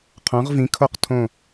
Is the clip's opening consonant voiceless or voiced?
voiceless